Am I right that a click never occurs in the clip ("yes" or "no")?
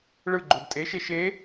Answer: no